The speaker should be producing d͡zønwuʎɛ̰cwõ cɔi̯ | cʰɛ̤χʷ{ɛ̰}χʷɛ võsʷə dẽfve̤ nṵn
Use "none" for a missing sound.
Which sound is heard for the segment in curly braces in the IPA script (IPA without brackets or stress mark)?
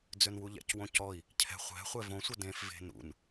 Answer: ɛ̤